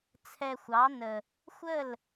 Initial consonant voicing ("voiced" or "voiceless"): voiceless